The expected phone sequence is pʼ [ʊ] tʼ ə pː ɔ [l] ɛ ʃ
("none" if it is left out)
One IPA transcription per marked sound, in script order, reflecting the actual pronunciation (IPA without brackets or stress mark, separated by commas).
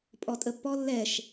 ɔ, lː